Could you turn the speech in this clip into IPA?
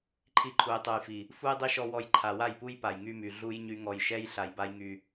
ǃʰi˧ǃʰu˨jtˤu˨jfi˨ | fu˦jdˤi˦ʃɔ˧ wɔ˧jǃʰa˨wa˦˨jpu˦j pa˨jŋy˧my˨ ɮu˦jɲy˦ŋɔ˧j ʃɛ˦j ɬa˧jba˦j ŋy˧

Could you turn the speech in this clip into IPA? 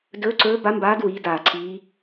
dɵː˧˥ǀɵː˧˥ba˧˥mbaː˧˥d wiː˧˥daː˧˩ǀʰiː˧˥

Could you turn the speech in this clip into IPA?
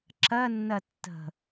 ǁɜnːɜ tːə̤

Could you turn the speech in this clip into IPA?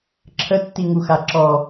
ǁʰətːiŋu xaǁɔ

